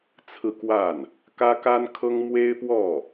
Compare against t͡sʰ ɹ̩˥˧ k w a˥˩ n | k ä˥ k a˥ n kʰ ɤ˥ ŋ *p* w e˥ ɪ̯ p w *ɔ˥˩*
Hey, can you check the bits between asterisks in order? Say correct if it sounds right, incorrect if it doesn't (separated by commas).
incorrect, correct